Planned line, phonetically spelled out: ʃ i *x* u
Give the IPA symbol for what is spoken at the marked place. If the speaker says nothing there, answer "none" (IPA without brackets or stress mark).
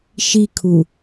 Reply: kʰ